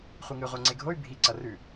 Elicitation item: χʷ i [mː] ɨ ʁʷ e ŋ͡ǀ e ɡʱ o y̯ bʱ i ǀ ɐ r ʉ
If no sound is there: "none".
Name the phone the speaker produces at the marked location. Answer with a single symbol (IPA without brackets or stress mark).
ŋ